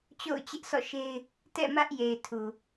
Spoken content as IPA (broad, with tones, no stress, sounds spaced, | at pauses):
t͡ɕ o̰˦˨ ʊ̯ t͡ɕ ɪ˦ ʔ s ɔ̰˦˨ ʃ e˦ ɪ̯ | t ɛ̰˦˨ m ä˦ ʔ j e˨ ɪ̯ tʰ u˨